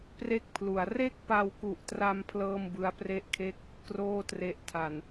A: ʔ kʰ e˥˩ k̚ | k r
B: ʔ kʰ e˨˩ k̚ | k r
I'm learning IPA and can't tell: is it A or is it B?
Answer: A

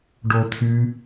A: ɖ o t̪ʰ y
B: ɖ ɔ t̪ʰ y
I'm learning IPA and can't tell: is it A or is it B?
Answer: A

